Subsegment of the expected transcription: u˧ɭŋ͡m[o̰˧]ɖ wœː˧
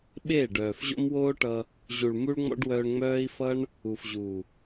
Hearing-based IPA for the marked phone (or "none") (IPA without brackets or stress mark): ɔ̰˧